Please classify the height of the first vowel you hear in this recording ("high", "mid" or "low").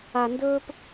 low